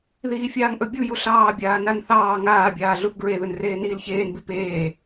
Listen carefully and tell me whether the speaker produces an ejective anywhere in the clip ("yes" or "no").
no